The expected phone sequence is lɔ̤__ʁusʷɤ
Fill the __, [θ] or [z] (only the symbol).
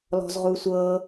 z